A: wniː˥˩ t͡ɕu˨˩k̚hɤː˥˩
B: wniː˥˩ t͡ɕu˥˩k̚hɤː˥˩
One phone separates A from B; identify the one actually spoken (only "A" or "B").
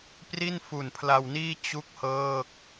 B